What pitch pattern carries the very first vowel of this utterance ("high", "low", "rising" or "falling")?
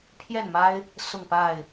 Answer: falling